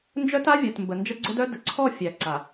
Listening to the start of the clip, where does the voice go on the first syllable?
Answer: high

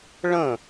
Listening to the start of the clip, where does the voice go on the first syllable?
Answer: falling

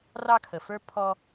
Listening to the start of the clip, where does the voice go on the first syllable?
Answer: high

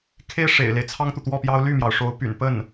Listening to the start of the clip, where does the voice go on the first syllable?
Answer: falling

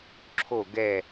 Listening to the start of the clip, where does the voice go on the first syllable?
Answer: falling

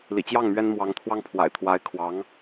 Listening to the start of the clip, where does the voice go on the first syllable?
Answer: low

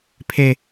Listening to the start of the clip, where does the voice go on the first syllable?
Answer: high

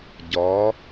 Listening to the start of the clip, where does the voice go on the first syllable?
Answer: rising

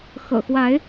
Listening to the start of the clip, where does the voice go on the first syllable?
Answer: low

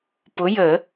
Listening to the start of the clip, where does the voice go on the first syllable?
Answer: rising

